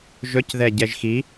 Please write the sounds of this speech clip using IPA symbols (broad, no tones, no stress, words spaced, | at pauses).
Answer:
ʒɵcðɛ ɟɛʒxi